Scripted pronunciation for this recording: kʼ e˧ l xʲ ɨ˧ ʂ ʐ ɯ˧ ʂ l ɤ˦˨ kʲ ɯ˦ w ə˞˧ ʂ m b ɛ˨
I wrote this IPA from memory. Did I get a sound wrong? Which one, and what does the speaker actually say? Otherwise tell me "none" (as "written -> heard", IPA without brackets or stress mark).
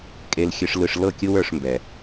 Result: ʐ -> l